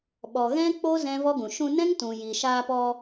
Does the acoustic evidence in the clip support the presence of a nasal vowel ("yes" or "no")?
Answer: yes